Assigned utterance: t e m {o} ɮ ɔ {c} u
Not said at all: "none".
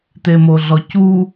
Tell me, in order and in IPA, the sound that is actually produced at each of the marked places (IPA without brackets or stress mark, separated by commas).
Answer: o, c